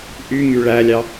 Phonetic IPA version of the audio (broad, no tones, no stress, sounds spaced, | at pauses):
ʔ y ŋ y ɭ æ lʲ ɑ